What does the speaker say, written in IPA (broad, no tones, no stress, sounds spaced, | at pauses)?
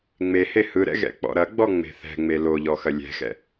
ŋ͡m e h e h ɯ ɾ ɛ̰ ɣ ɛ̰ k͡p ɔ̰ ɾ ɐ ɡ͡b ɔ ŋ͡m e̤ θ ɛ̤ ŋ͡m e l o ʎ ɔ x ɐ lʲ ɛ̤ x ɛ̰